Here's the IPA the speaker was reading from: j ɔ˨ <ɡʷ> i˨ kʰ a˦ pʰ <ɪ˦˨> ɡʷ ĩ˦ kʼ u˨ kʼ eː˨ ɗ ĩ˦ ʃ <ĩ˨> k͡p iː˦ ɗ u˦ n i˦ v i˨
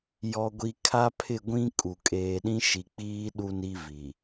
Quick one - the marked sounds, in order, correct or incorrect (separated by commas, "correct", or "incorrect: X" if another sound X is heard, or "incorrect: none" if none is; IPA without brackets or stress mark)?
correct, correct, incorrect: i˨